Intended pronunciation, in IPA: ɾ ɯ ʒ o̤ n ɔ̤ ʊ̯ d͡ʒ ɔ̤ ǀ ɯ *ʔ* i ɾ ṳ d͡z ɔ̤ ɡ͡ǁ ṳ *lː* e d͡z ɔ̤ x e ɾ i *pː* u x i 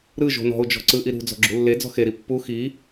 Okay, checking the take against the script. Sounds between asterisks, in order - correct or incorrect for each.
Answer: correct, correct, correct

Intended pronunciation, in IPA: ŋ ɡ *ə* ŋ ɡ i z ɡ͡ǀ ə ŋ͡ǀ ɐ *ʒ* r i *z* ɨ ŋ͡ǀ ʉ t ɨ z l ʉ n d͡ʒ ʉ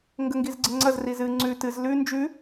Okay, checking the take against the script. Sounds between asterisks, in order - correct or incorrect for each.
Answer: correct, incorrect: z, correct

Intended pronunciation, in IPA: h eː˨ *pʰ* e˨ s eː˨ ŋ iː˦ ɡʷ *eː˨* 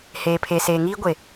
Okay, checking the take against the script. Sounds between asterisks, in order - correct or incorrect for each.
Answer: correct, incorrect: e˨

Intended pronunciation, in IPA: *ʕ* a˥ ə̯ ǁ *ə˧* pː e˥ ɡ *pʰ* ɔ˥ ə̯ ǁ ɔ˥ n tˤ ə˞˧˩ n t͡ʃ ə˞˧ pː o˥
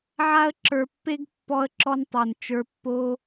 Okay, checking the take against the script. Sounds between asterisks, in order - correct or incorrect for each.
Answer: correct, incorrect: ə˞˧, incorrect: pː

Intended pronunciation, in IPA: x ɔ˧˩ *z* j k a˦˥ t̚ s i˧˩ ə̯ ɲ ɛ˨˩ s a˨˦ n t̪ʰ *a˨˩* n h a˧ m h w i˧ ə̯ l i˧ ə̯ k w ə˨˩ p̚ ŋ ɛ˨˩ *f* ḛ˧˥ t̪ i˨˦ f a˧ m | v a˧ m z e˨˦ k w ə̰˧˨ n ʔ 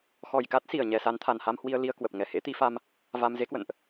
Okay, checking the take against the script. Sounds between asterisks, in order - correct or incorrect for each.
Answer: incorrect: none, correct, incorrect: h

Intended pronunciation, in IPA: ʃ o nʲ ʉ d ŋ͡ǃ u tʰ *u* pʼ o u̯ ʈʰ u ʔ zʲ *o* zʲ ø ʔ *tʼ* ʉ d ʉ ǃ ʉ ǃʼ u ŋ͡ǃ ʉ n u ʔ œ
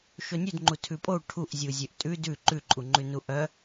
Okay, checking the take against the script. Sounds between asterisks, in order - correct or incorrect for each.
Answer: incorrect: ʉ, incorrect: u, correct

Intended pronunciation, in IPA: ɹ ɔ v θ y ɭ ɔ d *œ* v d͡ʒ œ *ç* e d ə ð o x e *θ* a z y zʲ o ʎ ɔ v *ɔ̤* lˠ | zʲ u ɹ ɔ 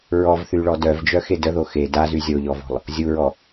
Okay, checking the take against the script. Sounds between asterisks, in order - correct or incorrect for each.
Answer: correct, incorrect: x, incorrect: d, correct

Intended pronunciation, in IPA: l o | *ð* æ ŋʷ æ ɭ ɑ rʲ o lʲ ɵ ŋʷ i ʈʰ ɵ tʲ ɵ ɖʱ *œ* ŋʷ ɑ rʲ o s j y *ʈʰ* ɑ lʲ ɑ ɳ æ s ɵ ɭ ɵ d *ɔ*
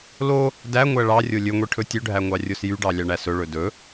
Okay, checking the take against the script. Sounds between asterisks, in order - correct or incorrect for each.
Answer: incorrect: d, incorrect: æ, incorrect: ɖ, incorrect: ɵ

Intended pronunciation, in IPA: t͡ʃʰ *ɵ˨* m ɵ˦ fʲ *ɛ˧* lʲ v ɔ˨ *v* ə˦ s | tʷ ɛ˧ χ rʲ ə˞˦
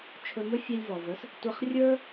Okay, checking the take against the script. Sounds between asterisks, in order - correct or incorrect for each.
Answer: incorrect: ɵ˧, correct, correct

